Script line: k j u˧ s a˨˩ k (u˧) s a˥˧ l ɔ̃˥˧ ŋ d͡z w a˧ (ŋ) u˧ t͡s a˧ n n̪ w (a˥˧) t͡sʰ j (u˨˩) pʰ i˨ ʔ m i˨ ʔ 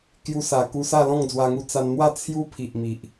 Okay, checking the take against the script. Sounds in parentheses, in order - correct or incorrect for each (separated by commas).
correct, correct, correct, incorrect